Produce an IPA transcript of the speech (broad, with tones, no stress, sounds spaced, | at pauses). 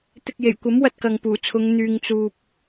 t̪ ɪ˧ k̚ j e˨˩ j kʷ ɐ˨˥ m w ɐ˧ t̚ k ɐ˨ ŋ p uː˨˩ t͡sʰ ʊ˨˧ ŋ n̪ yː˧ ŋ t͡s uː˧ p̚